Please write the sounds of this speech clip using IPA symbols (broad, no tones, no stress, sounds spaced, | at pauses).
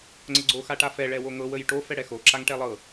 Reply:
ŋ͡ǀ ə ɡ͡ǀ o x a ʈ a f ɛ ɭ ɛ w o ŋ ɤ w ə j ʈ o f ɛ ɽ ɛ x o ǁ a ŋ ʈ ɛ lˠ ɤ